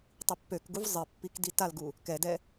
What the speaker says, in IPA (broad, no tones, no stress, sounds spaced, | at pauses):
tˤ i pː ø k ɡ u v zˤ ɘ pː i k d i t a l ɡ u | k ɛ d ɛ